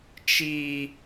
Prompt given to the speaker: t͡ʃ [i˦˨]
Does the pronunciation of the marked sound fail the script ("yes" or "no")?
yes